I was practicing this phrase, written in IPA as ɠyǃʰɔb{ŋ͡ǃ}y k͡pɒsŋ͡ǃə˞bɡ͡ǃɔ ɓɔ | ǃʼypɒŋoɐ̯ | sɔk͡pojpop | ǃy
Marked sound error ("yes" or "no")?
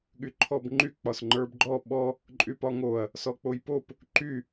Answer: no